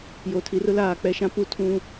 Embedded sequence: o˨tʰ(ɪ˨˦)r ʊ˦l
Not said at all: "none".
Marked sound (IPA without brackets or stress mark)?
i˨˦